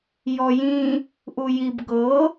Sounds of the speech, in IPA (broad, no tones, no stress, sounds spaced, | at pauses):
j ɔ j ĩ | ʔ u j i b ɡ ɤ